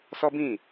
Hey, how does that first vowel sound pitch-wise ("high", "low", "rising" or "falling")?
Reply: high